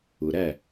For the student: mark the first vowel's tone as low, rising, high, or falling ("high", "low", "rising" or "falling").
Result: low